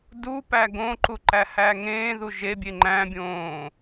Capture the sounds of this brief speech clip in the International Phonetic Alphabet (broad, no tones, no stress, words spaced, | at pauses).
du pæɡõǃu ǃæhæŋẽːðu ʒebʲe ŋ͡ǃæ̃bʲõː